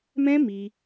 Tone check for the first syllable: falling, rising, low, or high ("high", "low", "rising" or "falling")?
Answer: high